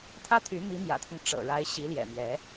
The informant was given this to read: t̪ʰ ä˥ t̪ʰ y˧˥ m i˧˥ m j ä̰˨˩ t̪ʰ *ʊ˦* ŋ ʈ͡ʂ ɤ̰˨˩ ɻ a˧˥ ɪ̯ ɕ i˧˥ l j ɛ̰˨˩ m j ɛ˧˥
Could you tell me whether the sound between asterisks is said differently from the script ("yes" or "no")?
no